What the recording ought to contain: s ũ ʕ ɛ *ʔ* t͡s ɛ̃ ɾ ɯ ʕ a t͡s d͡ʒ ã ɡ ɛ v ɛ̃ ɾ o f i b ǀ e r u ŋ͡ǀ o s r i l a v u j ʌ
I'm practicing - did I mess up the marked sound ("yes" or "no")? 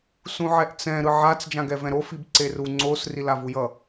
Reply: no